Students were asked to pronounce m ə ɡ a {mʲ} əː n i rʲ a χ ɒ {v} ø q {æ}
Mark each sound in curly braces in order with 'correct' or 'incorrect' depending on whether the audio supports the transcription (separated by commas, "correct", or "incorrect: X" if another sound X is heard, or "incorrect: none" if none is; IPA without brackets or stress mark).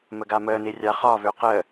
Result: incorrect: m, correct, incorrect: ə